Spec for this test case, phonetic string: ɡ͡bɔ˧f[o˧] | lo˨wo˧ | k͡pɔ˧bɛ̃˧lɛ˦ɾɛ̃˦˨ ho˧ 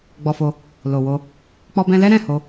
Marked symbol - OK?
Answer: yes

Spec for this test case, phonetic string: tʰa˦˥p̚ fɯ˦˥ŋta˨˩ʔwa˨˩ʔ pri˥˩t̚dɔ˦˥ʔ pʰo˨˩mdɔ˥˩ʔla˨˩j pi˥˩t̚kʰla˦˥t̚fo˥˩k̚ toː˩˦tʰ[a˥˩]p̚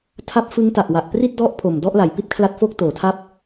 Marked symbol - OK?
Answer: yes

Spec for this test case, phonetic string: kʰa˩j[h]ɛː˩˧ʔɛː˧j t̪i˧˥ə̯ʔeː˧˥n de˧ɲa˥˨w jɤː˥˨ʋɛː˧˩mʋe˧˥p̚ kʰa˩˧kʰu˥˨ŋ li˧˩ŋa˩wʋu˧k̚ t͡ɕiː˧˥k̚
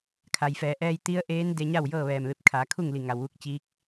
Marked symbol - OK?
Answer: no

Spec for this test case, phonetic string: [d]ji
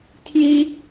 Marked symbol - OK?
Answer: no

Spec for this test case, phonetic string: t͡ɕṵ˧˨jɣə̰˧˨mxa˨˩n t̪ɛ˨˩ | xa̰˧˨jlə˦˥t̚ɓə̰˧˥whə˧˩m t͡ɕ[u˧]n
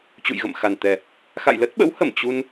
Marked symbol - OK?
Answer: yes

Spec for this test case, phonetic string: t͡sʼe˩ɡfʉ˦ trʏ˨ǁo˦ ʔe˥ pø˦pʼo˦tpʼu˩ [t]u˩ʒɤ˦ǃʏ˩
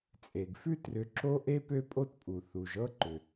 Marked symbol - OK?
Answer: no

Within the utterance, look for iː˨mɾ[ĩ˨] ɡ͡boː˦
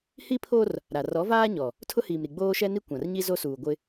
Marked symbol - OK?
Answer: no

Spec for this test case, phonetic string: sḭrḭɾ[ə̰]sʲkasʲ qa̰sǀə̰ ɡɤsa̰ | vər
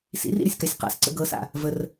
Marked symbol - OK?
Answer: no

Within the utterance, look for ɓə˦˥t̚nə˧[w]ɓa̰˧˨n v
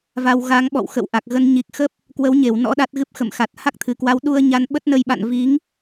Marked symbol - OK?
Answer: no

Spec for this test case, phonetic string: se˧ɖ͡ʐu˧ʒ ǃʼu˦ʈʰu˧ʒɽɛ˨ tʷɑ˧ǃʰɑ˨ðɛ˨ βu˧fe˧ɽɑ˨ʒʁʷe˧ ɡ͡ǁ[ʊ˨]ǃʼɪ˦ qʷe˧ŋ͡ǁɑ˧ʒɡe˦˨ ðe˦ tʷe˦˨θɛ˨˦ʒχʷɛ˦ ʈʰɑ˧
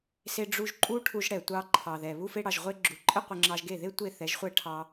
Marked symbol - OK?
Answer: no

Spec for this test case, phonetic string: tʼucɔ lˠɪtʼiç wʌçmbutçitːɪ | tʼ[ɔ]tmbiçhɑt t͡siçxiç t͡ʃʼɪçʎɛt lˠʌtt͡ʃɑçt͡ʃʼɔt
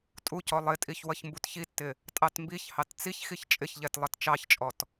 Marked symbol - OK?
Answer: no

